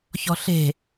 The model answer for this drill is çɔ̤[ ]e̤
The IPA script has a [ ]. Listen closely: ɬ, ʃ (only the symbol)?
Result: ɬ